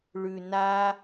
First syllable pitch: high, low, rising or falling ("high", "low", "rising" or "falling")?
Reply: low